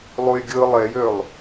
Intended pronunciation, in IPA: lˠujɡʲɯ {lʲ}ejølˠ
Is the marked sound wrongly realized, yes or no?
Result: yes